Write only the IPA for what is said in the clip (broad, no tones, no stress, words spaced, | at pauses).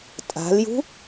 tʼa̤ljṳ